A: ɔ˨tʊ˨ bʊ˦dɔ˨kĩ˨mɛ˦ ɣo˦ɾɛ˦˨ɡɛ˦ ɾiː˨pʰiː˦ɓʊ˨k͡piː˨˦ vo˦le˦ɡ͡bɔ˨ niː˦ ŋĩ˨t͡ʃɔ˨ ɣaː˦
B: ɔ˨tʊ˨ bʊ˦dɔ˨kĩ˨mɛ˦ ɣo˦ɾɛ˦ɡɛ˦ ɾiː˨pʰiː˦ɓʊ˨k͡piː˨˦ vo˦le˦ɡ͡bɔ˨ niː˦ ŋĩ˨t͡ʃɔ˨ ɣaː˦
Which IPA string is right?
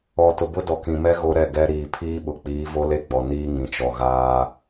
A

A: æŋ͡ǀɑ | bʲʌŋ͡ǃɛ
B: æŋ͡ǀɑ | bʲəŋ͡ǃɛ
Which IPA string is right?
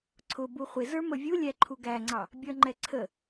A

